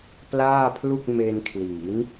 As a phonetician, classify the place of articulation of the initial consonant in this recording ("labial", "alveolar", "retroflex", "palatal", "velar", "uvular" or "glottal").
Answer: labial